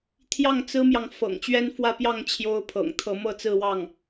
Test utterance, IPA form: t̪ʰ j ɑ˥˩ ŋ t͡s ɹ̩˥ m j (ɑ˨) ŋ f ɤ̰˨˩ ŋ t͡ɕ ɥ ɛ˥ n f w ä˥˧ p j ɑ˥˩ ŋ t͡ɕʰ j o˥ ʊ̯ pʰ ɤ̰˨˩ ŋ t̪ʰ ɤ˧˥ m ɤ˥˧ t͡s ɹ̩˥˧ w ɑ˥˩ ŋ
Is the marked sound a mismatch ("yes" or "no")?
no